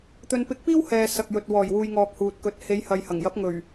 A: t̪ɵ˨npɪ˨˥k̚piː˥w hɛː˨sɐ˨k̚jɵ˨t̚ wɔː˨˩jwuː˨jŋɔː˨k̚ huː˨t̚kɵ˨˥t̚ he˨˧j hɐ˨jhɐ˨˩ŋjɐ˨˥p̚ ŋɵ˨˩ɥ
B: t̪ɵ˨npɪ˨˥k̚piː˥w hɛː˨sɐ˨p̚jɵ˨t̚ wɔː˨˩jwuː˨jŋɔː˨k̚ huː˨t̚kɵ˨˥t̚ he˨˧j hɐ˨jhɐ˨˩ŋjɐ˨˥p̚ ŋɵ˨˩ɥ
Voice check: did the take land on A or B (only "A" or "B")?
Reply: A